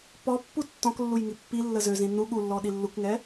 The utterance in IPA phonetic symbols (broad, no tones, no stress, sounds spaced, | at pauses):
p ɔ pː u tː ɔ̃ k lː u j ŋ i pː i lː ə z ø z ĩ n u ɠ u lː ɔ ɗ i lː u k ŋ ɛ